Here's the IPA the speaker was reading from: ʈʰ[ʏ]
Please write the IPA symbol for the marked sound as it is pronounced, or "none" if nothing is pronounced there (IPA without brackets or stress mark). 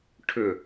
ʏ